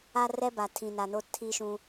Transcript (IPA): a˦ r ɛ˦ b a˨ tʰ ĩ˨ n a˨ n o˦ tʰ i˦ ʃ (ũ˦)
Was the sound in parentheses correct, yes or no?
yes